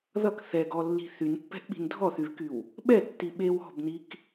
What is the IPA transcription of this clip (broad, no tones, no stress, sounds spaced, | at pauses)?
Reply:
ð ʌ k θ ɛ ɡ ɔ lː i̤ θ y n pː ɛ̤ ʔ ɓ i̤ n dʱ ɔ θ y v k y w | ɓ ɛ tː i ɓ e w ɔ̤ b n i k